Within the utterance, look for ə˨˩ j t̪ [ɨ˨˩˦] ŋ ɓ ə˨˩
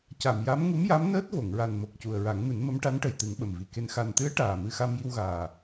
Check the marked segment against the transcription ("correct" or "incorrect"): correct